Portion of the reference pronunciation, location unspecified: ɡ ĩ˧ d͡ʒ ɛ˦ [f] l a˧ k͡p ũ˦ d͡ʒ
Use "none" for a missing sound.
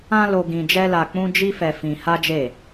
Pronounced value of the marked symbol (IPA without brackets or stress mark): none